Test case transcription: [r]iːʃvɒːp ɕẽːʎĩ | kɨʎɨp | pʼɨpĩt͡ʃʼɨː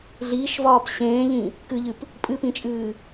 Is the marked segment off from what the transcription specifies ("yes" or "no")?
yes